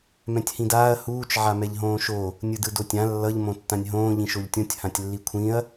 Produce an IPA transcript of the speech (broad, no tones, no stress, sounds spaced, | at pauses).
m ɛ̃ tʲ h ĩ d aː ɐ̯ h uː t͡ʃ ʕ a m ɛ ʎ ɦ õː ʃ o | nʲ ɯ d ɯ d o tʲ ã lː ʌ ʎ m õ tː ã nʲ ɦ õː ʎ ĩ ʃ o ʎ tʲ õ tʲ h ã tʲ lː i kʷʰ ĩ ɐ̯